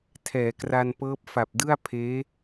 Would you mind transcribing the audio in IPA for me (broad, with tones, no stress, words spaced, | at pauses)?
tʰɛː˩˦kra˧npɤː˦˥p̚ fa˨˩p̚dɯ˥˩a̯ pʰeː˦˥